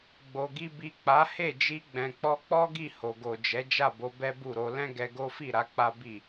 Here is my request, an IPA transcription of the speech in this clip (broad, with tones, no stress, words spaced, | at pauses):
ɡ͡bo˨ɡi˧ bi˨ k͡pa˨˦he˦˨ d͡ʒi˧ɡ͡bɛ̃˨k͡pɔ˧k͡pɔ˦ ɡi˦˨ho˨ɡo˨d͡ʒɛ˨˦ d͡ʒa˦˨bo˨˦ bɛ˦bu˦˨ɾo˧ lɛ̃˦ɡɛ˧ɡo˦fi˦˨ ɾa˨˦k͡pa˦bi˦˨